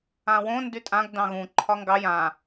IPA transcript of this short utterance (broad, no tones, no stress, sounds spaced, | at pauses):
ã w õ n d y tʼ ã ɡ d ɑ̃ ɣ ũ ǃʰ ɒ ŋ ɡ ɑ j ã